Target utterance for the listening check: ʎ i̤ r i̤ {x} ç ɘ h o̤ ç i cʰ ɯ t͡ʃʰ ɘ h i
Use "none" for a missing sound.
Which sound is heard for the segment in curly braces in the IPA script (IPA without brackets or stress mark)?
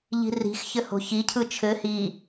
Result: x